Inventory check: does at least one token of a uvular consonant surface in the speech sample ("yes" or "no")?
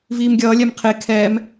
yes